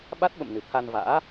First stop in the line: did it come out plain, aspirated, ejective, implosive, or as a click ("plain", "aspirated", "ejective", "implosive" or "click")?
implosive